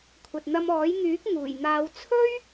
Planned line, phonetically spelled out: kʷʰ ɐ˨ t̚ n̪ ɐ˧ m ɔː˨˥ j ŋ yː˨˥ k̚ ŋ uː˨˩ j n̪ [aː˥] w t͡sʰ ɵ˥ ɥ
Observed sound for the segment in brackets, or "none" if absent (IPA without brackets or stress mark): aː˨˧